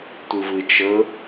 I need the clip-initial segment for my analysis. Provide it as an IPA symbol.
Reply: tʷ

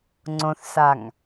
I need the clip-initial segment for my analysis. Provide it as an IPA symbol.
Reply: ŋ͡ǀ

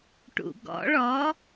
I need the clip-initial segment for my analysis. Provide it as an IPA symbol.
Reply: ʈ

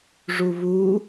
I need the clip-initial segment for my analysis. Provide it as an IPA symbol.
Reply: ʐ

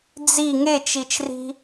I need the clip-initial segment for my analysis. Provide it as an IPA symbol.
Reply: d͡z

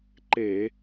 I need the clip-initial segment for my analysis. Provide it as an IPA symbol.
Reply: ǃ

